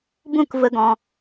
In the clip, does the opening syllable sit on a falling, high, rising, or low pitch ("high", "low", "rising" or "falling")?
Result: falling